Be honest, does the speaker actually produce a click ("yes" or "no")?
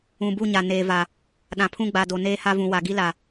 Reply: no